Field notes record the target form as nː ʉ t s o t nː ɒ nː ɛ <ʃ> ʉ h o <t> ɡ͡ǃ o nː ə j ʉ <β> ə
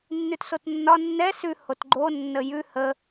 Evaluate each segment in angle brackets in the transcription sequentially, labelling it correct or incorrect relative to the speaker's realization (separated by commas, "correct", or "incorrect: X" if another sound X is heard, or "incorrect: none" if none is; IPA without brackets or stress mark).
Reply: incorrect: s, correct, incorrect: h